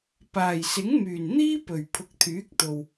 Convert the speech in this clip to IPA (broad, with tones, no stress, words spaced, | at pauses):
paː˨˩jsɪ˨˥ŋmyː˨˩n n̪iː˥pɵ˨˩ɥ pʰʊ˨˥k̚t̪ʰyː˨˥k̚t̪o˨w